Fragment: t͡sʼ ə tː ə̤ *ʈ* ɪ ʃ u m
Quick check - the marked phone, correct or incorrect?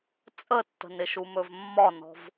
incorrect